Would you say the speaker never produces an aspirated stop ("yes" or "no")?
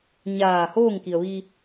yes